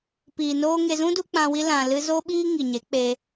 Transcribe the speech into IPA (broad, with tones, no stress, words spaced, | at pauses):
piː˨noː˦ŋe˧ zũ˦du˧ k͡pã˧wi˦ lã˨ lɨ˧zo˦ɓiː˦ ŋi˨ɲe˨˦ k͡pe˦